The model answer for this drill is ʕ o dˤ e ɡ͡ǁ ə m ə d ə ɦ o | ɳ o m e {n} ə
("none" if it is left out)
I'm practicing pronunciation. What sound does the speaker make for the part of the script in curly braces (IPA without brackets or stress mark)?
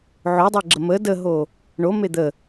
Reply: d̪